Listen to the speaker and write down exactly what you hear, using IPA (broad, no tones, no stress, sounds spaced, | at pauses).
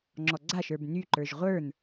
ŋ͡ǁ ɔ ɡ͡ǀ a ʃ ə˞ b n y ǃ ə˞ ʒ ʁʷ ə˞ n